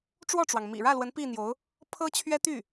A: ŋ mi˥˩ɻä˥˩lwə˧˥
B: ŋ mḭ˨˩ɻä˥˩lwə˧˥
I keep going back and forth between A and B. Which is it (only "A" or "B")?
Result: B